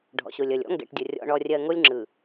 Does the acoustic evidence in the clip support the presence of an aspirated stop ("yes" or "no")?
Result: no